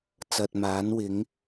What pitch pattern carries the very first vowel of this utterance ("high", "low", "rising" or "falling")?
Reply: low